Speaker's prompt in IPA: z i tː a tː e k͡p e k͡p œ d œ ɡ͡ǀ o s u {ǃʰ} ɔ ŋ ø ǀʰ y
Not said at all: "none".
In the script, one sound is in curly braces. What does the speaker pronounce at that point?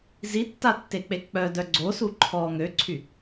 ǃʰ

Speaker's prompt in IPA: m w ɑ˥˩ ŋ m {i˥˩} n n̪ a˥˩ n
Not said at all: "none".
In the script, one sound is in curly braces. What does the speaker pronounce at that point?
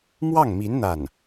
i˧˥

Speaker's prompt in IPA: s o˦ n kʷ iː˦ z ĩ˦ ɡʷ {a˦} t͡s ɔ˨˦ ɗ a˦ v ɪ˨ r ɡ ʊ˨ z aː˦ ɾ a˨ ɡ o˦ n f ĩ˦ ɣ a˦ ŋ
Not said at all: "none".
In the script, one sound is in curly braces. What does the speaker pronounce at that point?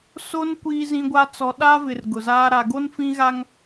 a˦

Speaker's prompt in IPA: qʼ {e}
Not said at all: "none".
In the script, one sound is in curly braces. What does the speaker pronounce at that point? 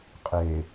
e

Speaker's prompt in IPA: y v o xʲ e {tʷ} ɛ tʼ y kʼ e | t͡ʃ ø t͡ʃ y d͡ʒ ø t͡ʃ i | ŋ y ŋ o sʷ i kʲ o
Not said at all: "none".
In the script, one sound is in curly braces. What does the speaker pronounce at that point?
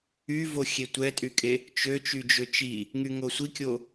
tʷ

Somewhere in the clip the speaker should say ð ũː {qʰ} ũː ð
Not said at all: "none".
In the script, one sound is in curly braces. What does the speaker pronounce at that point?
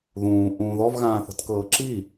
ʔ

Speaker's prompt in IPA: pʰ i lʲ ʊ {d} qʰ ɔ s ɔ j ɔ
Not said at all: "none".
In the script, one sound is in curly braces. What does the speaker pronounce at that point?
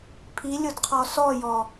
d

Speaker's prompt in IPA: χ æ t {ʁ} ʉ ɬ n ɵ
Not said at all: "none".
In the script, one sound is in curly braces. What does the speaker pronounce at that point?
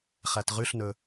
ʁ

